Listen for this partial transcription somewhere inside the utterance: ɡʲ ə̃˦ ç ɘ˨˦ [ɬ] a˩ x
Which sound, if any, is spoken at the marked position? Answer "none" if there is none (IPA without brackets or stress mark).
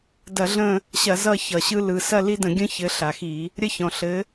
ɬ